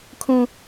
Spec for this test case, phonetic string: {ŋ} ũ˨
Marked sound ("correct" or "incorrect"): incorrect